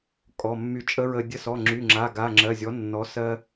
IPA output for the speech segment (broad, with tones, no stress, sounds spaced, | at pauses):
kʼ ɔ˩˧˩ mː y˧˩ t͡ʃʼ ə˦˥ ɹ ə˧ dʲ ə˧ s ɔ˩˧˩ ŋ͡ǁ y˩˧˩ ŋ͡ǁ a˩˧˩ ɡ a˩˧˩ ŋ͡ǁ ɜ˩˧˩ zʲ ɔ˩˥ nː ɔ˩˥ s ɜ˧